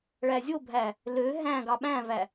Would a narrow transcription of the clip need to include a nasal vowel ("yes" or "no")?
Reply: yes